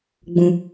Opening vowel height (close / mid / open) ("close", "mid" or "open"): close